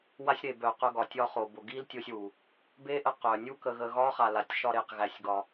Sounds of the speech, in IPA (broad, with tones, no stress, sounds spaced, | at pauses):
w a˦ sʲ ɾ e˨ b œ˨ q œ˧ ɡ ɒ˨ tʲ ɒ˧ χ o˨ b o˨ ɡ i˦ l tʲ o˧ sʲ w u˨ | b e˦ ʔ ə˧ q œ˨ nʲ u˦ k ə˧ ɣ ə˧ ɣ ɒ˦ χ a˨ l a˨ tʲ ʃ ɒ˧ ɾ e˧ q ɣ æ˧ sʲ ɡ ɒ˧